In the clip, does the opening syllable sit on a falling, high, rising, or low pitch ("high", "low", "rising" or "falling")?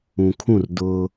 low